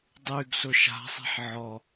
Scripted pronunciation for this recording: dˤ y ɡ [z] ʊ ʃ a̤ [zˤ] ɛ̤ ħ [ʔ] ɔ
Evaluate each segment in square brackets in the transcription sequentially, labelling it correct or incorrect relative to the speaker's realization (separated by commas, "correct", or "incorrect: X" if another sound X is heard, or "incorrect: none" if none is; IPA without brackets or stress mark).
incorrect: s, incorrect: sˤ, incorrect: ʕ